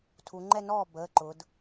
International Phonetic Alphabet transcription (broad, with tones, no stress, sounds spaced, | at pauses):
tʰ u˩˧ ŋ͡ǃ ɛ˥˧ n ɔː˥˩ b əː˩˧˩ ǃ ʊ˩˧ d